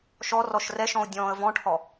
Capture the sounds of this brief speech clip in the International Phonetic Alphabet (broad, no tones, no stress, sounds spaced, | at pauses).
ʃ ɔ r ɔ ʃ r ɛ ʃ ɔ̃ ʊ̯ dʲ ɔ̃ː ə̯ v ɔ̃ ʈ h ɔ